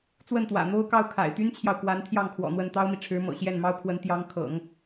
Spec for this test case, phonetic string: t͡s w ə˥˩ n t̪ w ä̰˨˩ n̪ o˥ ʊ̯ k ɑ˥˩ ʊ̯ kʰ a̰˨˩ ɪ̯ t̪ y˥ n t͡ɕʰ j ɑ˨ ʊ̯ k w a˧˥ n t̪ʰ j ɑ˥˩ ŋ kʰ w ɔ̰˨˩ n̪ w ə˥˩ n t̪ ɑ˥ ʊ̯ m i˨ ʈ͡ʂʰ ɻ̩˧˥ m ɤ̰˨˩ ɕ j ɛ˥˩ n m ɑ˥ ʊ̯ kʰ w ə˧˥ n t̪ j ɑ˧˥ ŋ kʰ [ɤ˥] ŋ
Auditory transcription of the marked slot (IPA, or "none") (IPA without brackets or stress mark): ɤ̰˨˩˦